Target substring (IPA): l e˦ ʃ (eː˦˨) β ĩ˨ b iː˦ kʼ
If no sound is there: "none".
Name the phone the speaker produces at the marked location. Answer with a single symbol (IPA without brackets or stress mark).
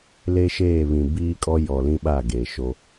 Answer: eː˦˨